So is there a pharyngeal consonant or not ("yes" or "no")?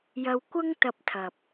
no